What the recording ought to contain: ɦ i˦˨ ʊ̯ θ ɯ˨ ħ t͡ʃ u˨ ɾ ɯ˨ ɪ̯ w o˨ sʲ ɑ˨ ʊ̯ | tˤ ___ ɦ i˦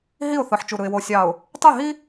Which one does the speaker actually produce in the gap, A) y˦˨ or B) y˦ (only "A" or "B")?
A